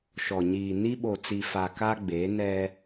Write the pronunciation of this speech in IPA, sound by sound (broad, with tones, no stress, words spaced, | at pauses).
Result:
ʃɔ˨ɲiː˨ ni˦ɓo˨t͡si˨fa˨ ka˦ ɡ͡be˨˦nɛ˦